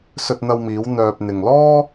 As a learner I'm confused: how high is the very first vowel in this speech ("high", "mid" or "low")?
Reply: mid